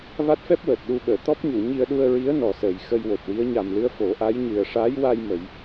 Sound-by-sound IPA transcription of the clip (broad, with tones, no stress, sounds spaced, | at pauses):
v a˦˥ t̚ f ɛ˦˥ p̚ w əː˨˩ t̚ ɗ u˧ ɓ əː˨˩˨ t̪ ɔ˦˥ p̚ ɲ u˨˩˨ ɲ i˧ ə̯ ɗ u˧ ə̯ ɹ i˧˥ ə̯ n ɔ˨˩ s əː˨˩ j x ə˧ j w o˨˩ t̚ w i˧˥ ə̯ ɲ a˨˩ m l ɨ˧ ə̯ f o˨˩˦ ʔ a˧˥ j ɲ ɨ˨˩ ə̯ ʂ aː˧˥ j w a˧ j m ə˨˩˦ j